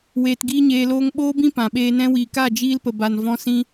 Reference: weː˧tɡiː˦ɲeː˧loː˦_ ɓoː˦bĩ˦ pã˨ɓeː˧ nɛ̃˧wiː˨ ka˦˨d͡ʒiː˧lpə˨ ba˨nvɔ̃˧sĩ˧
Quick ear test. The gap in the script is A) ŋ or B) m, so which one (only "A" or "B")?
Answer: A